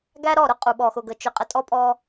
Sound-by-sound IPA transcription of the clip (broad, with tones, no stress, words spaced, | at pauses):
ɡæ˦ɾɔ˦˨ ɾʊ˦qʼu˨ ɓɔ˨xʊ˨ɡə˨ t͡ʃʊ˨qʼə˨tʼɔ˦pʼɔ˦